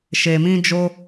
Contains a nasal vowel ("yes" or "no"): yes